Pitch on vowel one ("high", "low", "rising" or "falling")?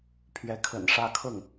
rising